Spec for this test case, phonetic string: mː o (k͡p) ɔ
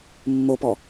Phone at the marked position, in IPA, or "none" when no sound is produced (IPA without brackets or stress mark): p